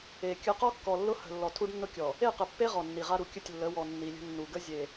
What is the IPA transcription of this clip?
e˨ kʲ ə˨˦ q ɔ˦ kː ɔ˨ lː ʊ˦ h ə̤˨ lː ɔ˨ tʰ u˦ ɖ nː ʊ˦ kʲ ɔ˨ | e˦˨ q ə˨ pː e˦ ʁ ɔ˨ nː i˨ ʁ a˦ ɾ u˨ kʲ ə˦˨ tʲ lː ə˨˦ w ɔ˨ nː i˨ lʲ ə̤˦ nː u˨ ɡ ə˦ zʲ e˨

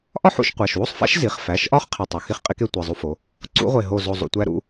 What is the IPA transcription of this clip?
ʔ ɒ˥˨ ħ ṵ˧˩˧ ʃ qʷ æ˩˧˩ ʃ w u˥˨ sˤ f æ̰˦˥ ʃ z i˩˧˩ χ f æ˩˧˩ ʃ ʔ ɒ˦˥ χ qʰ e˧˩ tˤ u˩˧˩ x i˥˨ χ qʼ i˦˥ k e˦˥ tʷ e˩˧˩ zˤ u˦˥ f o˩˧˩ | ǀ ṵ˦˥ ʁʷ e˧˩ ɦ o˧˩ z o˧˩ zˤ ṵ˧˩ tʷ æ˦˥ ɾ ṵ˥˨

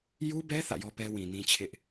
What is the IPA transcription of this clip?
j u˦ b ɛ˦ θ ä̰˦˨ j ɔ˦ p ɛ˦ w ĩ˨ n ĩ˦ t͡ɕʰ ɪ˦ ʔ

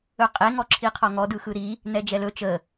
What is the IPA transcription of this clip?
ɵ qʼ e ŋ ɔ ǁʰ i qʰ ɔ ŋ ɔ d ɯ x ɯ ɾ i | n ɛ d͡ʒ ɛ l ɵ t͡ʃ ə

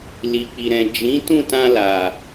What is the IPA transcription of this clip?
l i˨ k͡p i˨ ɾ ɛ̃˨ d͡ʒ ĩ˨˦ t ũ˦˨ t ã˧ l a˨

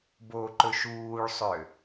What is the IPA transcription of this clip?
b o ǃ ɵ ʃ uː ɭ sˤ ø

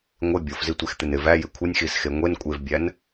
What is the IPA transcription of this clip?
ŋʷ ɪ bʲ o f z i tʷ e x t̪ ɪ n ɪ v æ j ɪ kʷʰ ɪ nʲ x i s x e ŋʷ e n kʷʼ e v bʲ æ n

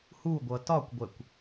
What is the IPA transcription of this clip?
h u ɡʷ ʌ t ɒ kʷ ɡʷ ɛ kʷ

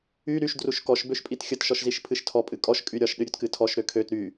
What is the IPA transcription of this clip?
y ɾ y ʃ d r u ʃ k ɔ ʃ b ø ʃ pʼ i t xʲ ə t ʃ ɔ ʃ z i ʃ pʰ ɨ ʃ tʰ ɔ pʼ ɨ kʼ ɔ ʃ kʼ y ɾʲ ɒ ʃ ɗ ɨ ɾʲ ø t k ɨ tʰ ɔ ʃ ɾ ø kʰ ø t ɾ y

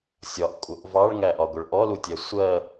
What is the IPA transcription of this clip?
sʲ ɒ ʔ kʷʼ ʌ ʔ v ɑ ɭ ŋ æ ʔ ɒ ɡʷ ʌ ɭ ʔ ɔ l u tʲ ɛ sʷ ɜ

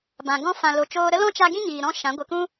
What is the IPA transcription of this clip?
b ã˨ ɡ ɔ̃˦ f ã˨ l o˨ t͡ʃ oː˧ ɾ ə˦ l ɔ̃˦ t͡ʃ a˧ ɡ ĩ˦ ɲ iː˨ ɾ ɔ̃˦ ʃ ã˨˦ ɡʷ ɨ˨ k ũ˦

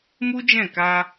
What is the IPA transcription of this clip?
m u˦ d͡ʒ ɛ̃˦˨ k a˧

